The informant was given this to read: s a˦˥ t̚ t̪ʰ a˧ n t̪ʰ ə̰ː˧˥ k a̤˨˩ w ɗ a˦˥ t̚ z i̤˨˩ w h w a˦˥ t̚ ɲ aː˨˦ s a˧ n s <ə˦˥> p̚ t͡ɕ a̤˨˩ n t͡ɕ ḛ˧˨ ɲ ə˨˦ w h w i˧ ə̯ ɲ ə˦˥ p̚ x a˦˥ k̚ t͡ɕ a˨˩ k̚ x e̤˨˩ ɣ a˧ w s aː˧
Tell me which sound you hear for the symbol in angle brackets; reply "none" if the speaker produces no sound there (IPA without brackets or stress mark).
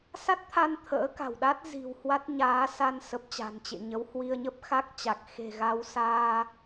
ə˨˩